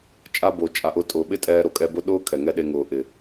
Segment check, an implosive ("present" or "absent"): present